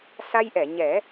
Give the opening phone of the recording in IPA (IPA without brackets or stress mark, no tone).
s